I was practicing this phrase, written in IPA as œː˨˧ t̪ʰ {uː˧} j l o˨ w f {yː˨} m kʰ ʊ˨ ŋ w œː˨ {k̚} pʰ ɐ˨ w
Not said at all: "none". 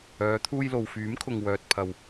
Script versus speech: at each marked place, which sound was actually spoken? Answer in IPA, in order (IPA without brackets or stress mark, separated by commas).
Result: uː˧, yː˨˥, t̚